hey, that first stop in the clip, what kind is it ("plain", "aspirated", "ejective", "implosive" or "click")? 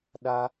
implosive